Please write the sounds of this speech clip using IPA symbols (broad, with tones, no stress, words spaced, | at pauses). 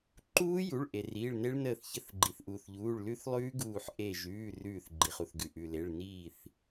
ǃuː˦˥ju˩˧˩ɭ ʔe˩riː˩˧˩ɭne˦˥ɭ nəː˧˩θçə˧˩θ ɡ͡ǃi˩θʔuː˩θʎuː˩˧˩ɭ lʉ˦˥θlˠʉː˦˥ ɡuː˧˩ħ ʔe˧˩ ʒʉː˩˧˩ rʉː˧˩θɡ͡ǃi˩χu˩θɡʉ˩ ʔʉ˩le˩˧˩ɭ niː˧˩θ